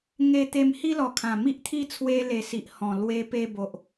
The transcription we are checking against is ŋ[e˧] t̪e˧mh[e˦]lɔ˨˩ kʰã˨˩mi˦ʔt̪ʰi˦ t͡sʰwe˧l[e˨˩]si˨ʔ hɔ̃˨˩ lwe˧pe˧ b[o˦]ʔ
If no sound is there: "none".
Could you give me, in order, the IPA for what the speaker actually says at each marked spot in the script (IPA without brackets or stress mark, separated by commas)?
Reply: e˧, i˦, e˨˩, o˨